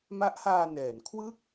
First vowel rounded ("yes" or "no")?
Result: no